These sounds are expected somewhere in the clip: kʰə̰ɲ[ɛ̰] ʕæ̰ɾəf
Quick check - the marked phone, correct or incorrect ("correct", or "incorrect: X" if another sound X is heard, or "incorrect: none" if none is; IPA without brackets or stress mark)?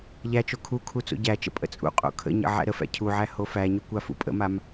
incorrect: ə̰